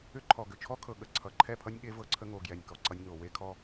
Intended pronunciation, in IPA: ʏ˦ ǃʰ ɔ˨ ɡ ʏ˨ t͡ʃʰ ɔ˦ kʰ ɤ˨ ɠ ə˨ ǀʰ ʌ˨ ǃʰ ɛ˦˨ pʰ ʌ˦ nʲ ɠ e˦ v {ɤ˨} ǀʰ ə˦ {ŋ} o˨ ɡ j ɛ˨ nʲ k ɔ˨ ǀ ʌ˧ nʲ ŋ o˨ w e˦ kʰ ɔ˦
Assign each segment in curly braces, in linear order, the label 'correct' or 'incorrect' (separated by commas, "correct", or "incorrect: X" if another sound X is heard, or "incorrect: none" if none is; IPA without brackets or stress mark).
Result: incorrect: ɤ˦, correct